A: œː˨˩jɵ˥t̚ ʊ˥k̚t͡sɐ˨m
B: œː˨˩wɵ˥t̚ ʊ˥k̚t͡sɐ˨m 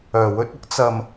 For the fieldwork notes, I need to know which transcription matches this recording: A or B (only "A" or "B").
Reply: B